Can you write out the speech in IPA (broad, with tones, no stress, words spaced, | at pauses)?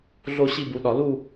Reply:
ɮo˥˧ɕi˥˧bu˨˦ɗɒ˨˦ lu˥˧